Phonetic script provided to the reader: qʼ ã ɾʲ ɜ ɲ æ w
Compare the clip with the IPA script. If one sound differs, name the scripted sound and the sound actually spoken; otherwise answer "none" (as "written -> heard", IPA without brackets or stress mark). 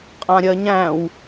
æ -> æ̃